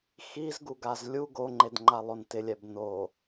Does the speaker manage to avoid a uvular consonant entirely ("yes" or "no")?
yes